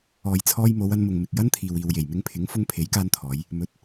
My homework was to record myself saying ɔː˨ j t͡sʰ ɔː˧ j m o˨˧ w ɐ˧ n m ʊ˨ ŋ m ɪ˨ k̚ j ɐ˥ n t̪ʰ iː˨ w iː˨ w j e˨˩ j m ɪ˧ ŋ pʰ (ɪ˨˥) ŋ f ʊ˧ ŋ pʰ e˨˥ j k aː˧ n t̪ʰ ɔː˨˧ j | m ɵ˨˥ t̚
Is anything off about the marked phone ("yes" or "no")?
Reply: no